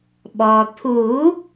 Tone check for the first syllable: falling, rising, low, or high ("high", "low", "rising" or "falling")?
low